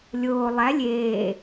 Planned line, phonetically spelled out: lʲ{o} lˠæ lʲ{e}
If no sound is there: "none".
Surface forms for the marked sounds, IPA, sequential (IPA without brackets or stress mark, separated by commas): oː, eː